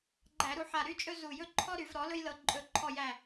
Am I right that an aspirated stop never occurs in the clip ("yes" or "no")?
no